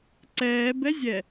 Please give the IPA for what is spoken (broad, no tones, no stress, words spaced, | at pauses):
ǀɛːbɛzʲɛ